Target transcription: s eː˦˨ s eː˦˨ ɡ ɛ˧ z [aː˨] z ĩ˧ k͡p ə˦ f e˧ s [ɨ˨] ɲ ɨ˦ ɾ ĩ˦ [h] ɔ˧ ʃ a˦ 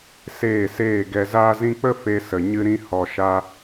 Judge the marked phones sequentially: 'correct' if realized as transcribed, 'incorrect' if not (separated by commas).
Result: incorrect, incorrect, correct